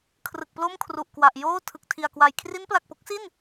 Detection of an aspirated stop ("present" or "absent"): present